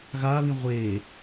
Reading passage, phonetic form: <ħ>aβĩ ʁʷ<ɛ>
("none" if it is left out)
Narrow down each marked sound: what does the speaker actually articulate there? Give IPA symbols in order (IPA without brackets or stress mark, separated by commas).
ɣ, e